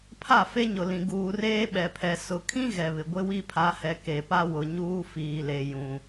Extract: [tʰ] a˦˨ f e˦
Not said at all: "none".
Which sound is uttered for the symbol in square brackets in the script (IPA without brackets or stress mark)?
pʰ